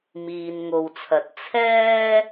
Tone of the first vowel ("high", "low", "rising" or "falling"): low